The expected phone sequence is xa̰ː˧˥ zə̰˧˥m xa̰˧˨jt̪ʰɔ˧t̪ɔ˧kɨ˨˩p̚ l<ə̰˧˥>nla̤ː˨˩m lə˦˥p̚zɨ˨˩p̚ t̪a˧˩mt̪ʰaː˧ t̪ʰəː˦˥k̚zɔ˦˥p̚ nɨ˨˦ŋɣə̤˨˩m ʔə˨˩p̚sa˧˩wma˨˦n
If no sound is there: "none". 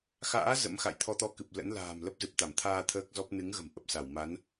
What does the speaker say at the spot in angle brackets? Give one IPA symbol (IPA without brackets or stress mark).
ə̰˧˥